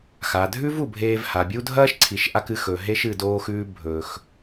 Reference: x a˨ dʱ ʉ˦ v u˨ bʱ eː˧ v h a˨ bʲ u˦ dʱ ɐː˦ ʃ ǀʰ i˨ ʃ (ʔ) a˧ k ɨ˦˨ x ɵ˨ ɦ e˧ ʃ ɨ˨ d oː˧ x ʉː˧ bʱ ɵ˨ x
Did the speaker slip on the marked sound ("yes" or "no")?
no